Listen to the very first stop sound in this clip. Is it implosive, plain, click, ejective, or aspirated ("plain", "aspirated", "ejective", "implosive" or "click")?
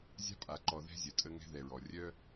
ejective